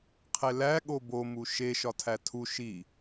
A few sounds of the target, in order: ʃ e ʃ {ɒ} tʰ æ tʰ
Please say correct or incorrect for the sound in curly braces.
correct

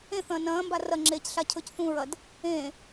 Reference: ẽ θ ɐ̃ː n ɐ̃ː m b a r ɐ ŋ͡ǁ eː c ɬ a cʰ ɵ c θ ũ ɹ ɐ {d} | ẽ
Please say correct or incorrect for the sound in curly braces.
correct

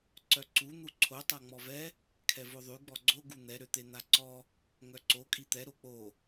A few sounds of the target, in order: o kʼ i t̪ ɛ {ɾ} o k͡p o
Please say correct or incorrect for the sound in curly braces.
correct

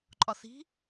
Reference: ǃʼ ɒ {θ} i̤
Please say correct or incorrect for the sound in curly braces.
correct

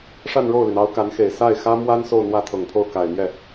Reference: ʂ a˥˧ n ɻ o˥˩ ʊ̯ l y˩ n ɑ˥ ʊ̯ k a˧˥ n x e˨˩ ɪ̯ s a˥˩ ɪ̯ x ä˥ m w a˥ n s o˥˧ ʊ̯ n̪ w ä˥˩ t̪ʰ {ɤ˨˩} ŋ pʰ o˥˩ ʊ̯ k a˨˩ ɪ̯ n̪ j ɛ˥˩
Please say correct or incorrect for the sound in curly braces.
correct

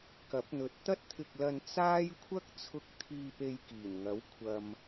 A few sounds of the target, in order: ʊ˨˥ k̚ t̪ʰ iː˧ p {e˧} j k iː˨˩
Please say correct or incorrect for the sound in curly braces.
correct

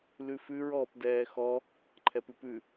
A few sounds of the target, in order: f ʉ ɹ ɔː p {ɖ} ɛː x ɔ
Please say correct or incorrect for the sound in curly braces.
incorrect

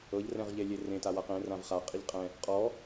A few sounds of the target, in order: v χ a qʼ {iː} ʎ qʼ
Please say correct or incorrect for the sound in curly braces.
incorrect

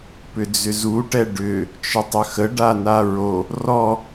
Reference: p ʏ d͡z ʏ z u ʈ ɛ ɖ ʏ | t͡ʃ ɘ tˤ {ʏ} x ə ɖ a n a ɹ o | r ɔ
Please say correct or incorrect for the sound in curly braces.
correct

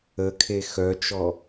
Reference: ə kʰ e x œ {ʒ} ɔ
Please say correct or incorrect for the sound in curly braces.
incorrect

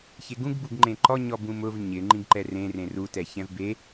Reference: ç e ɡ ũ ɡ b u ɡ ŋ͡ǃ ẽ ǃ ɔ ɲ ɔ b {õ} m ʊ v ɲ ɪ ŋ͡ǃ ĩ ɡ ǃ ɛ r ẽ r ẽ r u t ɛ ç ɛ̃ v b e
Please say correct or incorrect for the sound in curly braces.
incorrect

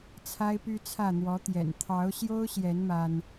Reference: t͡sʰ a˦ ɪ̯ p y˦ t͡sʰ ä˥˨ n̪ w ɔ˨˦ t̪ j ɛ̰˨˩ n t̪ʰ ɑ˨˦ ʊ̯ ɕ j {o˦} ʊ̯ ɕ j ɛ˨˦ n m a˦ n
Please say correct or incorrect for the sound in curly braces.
correct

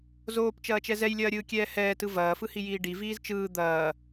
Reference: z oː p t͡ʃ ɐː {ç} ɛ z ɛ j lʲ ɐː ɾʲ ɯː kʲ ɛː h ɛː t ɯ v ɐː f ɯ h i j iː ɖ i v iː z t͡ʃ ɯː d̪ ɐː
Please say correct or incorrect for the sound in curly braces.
incorrect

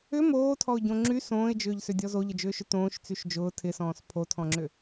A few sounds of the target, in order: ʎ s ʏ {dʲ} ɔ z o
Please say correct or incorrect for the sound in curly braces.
correct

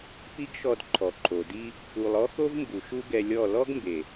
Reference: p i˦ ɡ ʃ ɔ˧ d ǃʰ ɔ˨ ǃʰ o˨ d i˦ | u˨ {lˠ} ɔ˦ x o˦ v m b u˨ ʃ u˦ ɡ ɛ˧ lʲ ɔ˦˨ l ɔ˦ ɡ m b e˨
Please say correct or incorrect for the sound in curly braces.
correct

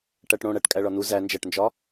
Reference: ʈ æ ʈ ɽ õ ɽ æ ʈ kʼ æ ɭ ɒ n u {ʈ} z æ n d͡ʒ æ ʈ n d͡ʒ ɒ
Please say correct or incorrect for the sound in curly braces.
incorrect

